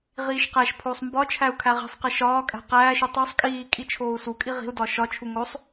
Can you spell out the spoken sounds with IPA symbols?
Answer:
ʁ iː ʃ q æ ʃ pʰ o sˤ m b ɒ t͡ʃʰ æ u̯ kʰ æ ʁ i̤ sˤ q e ʃ ɒː kʼ æ̤ q æː ʃ u tˤ o sˤ kʼ iː kʼ i t͡ʃʰ oː u̯ s u kʼ i ʁ i̤ u̯ d ɒ ʃ ɒ t͡ʃʰ u ŋ o sˤ

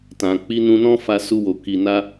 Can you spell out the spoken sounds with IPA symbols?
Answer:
t ã˨ k͡p i˧ n ũ˧ n ɔ̃˦ f a˧ s u˧ w o˨ k i˨ n a˧

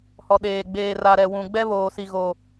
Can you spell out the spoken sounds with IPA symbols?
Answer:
h ɔ˨ ɗ eː˨ ɡ͡b eː˨ r a˨ ɾ ɛ˨ w ũ˨ ɡ͡b ɛ˦ β oː˨ s i˨ ɣ o˨

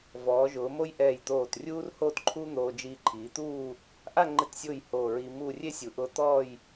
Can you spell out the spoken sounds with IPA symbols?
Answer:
v ɔː˩˧ ʒ ʊː˩˧ m o˥ j ʔ ɛː˧˩ j t̪ oː˧˩ t rʲ uː˥ r h o˥˧ t ǃʰ u˥ n̪ oː˧ d͡ʒ iː˧ ǃʰ iː˩˧ t̪ uː˥˧ | ʔ a˥˧ ŋ͡ǃ ɪ˧ t sʲ ʊː˧˩ j h o˧˩ ɹ i˧ m u˥˧ rʲ e˥ sʲ u˩˧ ʔ ʊː˧ t̪ ɔː˥˧ j

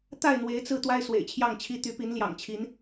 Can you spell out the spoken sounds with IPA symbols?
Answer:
t̪ a˥˨ ɪ̯ n̪ w e˨˦ ɪ̯ t͡s ɹ̩˧ t̪ w a˦ ɪ̯ s w ḛ˨˩ ɪ̯ t͡ɕʰ j ɑ˥˨ ŋ t͡ɕʰ i˦ t̪ y˨˦ p i˨˦ n l j ɑ̰˨˩ ŋ t͡ɕʰ i˨˦ n

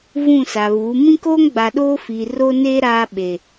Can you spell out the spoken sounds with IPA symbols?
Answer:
v ũ˦˨ s a˨ β uː˨˦ m ĩ˦ k oː˦ ŋ ɡ͡b a˨ ɗ oː˦ f iː˨ r o˦ n eː˦ ɾ aː˦ ɓ e˨

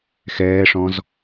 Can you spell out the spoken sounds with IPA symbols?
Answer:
x ɛː ʂ ɔ̃ z

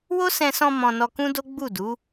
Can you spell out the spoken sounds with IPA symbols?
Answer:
w o˦ s ɛ̃˧ s ɔ̃˧ m ɔ̃˧ n ɔ˧ k ũ˦ d o˦ ɡ͡b u˦˨ d u˨˦

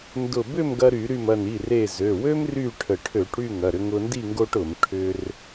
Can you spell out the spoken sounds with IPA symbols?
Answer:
n d ʊ˧˩ b ʏ˥˨ m ɡ ɐ˧ ɾ y˧˩˧ ɾ y˧˩ m ɐ˧˩ n i˩˧˩ r e˧˩ z ø˩˧˩ w ø˥ m r y˥˨ ʈʰ ə˧˩ ʈʰ ø˧˩˧ ʈ ɽ y˥˨ ŋ ɐ˩˧˩ ɾ ʏ˧ ŋ ʊ˧ n d i˥˨ ŋ ɡ o˥ ʈ ʊ˧˩˧ m ʈʰ ʏ˧ r

